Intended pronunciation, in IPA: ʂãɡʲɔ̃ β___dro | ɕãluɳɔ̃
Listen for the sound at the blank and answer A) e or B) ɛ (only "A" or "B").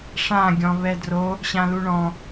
B